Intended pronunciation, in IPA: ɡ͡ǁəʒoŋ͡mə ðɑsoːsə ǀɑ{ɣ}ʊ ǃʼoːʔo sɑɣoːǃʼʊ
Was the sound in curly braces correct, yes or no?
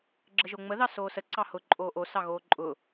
no